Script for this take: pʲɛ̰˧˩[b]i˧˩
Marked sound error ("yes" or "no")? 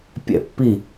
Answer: yes